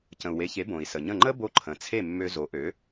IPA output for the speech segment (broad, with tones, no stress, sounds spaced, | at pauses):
c ə̃˩ u̯ w e˩˥ ç e˩˥ b õ˩ i̯ s ə˩ ɲ ə̃˥˩ ŋ͡ǃ ə˥ b o˧ ǃʰ ə̃˩ t͡sʰ e˥˩ mː ø˧ z o˩˥ ʔ ø˩˥